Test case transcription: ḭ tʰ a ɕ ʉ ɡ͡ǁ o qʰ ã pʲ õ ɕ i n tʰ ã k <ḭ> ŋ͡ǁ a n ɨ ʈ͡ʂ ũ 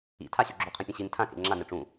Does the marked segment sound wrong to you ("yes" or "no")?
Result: yes